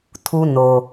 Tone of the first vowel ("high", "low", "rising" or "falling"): high